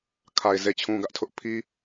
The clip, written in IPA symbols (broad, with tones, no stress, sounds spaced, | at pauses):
kʰ a˨ ɪ̯ z e˨ t͡ɕʰ ũ˨ ɡ ä˦ ʔ tʰ ʊ˦ ʔ pʰ i˦